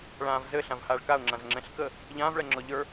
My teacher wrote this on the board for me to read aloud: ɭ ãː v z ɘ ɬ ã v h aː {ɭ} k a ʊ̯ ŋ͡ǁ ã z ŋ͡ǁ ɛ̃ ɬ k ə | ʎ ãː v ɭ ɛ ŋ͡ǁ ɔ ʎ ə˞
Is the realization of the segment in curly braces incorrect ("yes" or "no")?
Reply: no